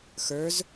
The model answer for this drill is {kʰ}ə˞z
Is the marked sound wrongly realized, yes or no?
yes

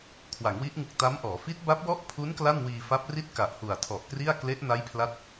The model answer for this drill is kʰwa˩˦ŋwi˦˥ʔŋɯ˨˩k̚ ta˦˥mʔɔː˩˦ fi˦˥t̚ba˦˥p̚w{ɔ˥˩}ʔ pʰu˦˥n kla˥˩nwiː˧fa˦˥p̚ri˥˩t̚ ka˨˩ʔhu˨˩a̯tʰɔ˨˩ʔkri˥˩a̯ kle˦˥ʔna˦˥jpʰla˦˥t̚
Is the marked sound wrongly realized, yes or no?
no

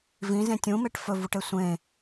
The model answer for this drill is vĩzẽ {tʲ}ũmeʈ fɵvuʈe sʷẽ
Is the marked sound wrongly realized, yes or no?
no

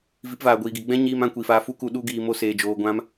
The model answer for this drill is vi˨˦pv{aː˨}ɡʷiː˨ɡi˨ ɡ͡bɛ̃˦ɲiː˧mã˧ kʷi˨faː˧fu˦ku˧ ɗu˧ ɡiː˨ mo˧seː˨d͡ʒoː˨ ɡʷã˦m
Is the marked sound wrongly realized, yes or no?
no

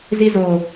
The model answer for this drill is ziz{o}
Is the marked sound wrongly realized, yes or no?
no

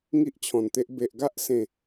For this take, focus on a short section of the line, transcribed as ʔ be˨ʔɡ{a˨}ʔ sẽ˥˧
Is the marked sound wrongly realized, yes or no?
yes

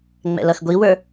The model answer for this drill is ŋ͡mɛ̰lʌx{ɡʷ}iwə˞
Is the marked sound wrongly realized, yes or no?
no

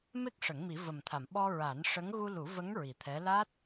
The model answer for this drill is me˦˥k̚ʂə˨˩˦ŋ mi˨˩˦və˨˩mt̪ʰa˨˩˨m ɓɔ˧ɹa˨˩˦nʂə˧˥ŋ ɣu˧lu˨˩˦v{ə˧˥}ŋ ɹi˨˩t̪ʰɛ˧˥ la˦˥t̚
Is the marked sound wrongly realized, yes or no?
no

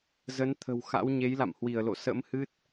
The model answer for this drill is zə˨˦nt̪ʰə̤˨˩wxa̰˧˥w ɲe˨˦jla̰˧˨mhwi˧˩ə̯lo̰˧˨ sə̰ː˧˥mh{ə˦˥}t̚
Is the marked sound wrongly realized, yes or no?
yes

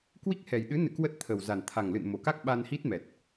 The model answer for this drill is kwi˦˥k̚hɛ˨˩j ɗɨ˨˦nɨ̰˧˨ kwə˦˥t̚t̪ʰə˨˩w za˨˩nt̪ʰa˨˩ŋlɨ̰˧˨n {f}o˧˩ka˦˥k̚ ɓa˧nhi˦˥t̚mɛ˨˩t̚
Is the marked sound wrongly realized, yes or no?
yes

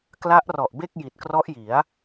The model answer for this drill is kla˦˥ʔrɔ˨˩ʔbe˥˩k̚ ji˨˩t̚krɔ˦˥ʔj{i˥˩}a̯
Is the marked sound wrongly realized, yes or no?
yes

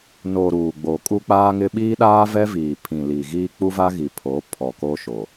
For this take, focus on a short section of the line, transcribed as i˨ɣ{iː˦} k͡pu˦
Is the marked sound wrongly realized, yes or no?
no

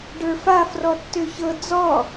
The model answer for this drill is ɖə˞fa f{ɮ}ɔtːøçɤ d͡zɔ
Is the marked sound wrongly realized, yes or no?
yes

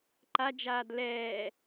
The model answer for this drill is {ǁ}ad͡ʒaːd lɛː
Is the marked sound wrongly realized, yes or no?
yes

